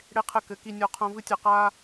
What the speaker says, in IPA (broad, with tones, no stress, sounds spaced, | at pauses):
ɽ e˧ qʰ ɘ˧ k ɘ˨˦ k i˧ nʲ ɔ˧ qʰ õ˧ v ɨ˦ tʲ ɐ˧ q aː˦